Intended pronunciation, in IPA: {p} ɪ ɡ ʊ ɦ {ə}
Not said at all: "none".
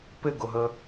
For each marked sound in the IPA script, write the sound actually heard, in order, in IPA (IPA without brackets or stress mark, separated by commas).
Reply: p, ə